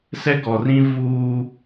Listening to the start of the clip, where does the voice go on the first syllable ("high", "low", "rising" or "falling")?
high